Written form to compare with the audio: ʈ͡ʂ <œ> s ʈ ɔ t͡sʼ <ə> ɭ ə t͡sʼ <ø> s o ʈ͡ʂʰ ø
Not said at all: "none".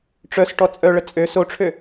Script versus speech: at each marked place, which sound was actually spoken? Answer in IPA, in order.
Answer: œ, œ, ø

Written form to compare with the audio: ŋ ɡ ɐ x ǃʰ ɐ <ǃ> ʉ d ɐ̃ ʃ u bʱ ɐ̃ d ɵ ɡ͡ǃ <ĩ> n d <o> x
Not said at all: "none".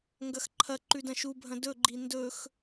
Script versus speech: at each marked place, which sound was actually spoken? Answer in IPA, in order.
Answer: ǃ, i, ɵ

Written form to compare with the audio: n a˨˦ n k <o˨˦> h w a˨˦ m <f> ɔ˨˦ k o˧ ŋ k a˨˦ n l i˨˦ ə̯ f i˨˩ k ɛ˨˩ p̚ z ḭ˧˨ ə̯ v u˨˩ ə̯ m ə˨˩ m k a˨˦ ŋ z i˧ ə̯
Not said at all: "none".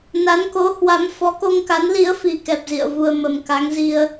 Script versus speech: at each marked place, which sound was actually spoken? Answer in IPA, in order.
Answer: o˨˦, f

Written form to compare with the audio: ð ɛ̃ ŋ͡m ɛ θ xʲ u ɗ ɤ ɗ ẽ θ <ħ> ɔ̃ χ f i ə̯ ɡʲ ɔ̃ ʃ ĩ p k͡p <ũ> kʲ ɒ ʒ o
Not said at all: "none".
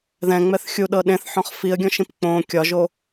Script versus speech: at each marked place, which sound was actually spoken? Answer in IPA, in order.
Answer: ħ, õ

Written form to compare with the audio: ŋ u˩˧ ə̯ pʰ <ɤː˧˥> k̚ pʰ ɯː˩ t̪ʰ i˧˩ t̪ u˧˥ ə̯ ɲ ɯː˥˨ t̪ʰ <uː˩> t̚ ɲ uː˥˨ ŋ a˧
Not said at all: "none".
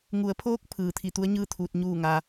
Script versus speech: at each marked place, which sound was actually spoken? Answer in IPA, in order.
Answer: oː˧˥, uː˧

